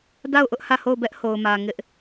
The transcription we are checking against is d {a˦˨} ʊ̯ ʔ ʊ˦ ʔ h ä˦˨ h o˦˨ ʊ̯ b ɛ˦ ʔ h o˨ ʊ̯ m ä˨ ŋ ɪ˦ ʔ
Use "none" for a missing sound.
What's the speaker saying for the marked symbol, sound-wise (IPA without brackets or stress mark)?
a˦˨